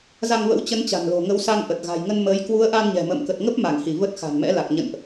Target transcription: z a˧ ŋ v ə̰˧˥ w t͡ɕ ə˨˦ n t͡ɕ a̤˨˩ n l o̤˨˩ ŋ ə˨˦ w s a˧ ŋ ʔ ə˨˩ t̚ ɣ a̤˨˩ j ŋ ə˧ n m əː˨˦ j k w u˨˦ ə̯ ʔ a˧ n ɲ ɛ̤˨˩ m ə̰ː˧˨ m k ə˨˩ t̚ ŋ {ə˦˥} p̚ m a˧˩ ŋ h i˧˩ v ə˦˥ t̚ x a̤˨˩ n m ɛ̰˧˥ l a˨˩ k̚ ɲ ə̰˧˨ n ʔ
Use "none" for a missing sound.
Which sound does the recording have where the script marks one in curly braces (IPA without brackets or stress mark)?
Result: ə˦˥